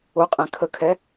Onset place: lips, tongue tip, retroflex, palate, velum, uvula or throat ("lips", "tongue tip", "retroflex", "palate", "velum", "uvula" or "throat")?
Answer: uvula